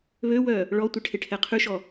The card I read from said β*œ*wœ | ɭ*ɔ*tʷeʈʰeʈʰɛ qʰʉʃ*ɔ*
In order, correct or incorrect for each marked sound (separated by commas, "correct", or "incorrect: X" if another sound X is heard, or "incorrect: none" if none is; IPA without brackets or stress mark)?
incorrect: ø, correct, correct